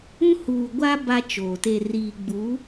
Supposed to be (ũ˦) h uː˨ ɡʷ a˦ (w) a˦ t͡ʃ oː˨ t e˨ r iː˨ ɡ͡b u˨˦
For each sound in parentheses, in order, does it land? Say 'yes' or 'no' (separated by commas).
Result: yes, no